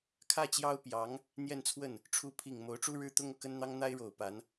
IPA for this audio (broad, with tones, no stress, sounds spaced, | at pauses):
kʰ ä˥˩ t͡ɕ j ɑ˥ ʊ̯ p j ɑ˧˥ ŋ | n̪ j ɛ˥˧ n t͡sʰ w ə˥˩ n | ʈ͡ʂʰ u˧˥ pʰ i˨˩ ŋ m o˧˥ ʊ̯ ʈ͡ʂ u˥ ɻ ɻ̩˥ t̪ ʊ˥ ŋ ɤ˥˩ k ə˥ n n̪ ɑ˥ ŋ n̪ a˥ ɪ̯ ɻ o˨˩ ʊ̯ p a˧˥ n